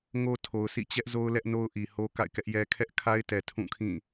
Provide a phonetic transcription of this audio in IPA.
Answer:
ŋo˦tʰo˨ʊ̯sḭ˦˨ t͡ɕɛ˦ʔzo˦ʊ̯lɛ˦ʔ no˦ʊ̯ʔi˨ho˦ ka̰˦˨ɪ̯kɛ˦ʔjɛ˦ kʰɛ˦ʔkʰa˦ɪ̯tɛ˨ tʰũ˦˨kʰĩ˦˨

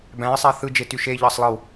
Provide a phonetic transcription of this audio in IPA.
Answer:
bæ̃ɪ̯ sˤæθɯ d͡ʒetyʃe ʎɑsˤlˠɯw

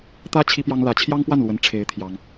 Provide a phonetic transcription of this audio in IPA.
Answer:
t̪ä˥ t͡ɕʰi˥pjɑ˥ŋ lä˧˥t͡ɕʰjɑ˥ŋpwa˥˩nlwə˧˥n ʈ͡ʂʰe˧˥ɪ̯ t̪ʰjɑ˥ŋ

